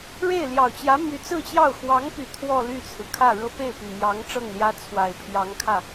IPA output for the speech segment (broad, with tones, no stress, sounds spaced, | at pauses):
ɻ e˥˩ ɪ̯ l j ɑ˨˩ ʊ̯ t͡ɕ j ä˧˥ m y˧˥ t͡s ɹ̩˥˧ t͡ɕ j ɑ˥˩ ʊ̯ x w ɑ˧˥ ŋ p y˨˩ t̪ʰ w ɔ˥˧ l y˥˩ t͡sʰ ɹ̩˩ kʰ ä˥˩ ɻ ɤ˥ p e˥˩ ɪ̯ p y˨˩ m j ɑ˧˥ ŋ ʈ͡ʂ ɤ˥˩ ŋ l j ä˥ t͡sʰ w a˨˩ ɪ̯ pʰ j ɑ˧˥ ŋ kʰ ä˥˩